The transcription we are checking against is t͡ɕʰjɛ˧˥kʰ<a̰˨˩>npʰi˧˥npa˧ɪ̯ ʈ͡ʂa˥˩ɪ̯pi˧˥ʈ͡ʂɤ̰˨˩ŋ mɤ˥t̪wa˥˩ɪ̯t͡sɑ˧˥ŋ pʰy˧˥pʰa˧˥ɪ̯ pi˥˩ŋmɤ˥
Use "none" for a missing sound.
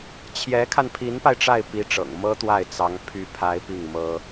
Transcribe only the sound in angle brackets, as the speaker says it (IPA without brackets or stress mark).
a˧